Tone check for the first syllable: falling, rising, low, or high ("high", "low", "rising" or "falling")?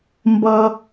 low